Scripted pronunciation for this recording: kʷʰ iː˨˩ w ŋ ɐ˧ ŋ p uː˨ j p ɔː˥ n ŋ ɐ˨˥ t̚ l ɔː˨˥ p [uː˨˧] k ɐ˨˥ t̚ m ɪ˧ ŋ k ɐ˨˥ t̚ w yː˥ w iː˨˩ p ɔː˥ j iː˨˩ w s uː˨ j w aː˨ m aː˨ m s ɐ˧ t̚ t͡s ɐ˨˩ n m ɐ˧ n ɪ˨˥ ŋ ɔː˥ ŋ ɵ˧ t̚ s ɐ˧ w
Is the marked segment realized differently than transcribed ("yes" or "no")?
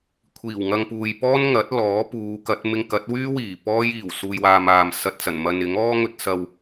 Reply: no